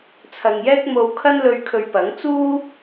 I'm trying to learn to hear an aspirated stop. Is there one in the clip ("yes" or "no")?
yes